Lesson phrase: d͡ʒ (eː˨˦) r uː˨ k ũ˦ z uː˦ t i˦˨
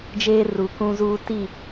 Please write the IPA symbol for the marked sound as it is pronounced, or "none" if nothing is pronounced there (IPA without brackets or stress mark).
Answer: eː˦